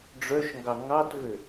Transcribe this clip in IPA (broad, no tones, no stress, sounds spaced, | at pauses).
ɖ͡ʐ œ ʃ ŋ ɡ ɑ ŋ ɑ t v ø